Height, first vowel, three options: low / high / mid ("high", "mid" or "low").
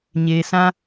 mid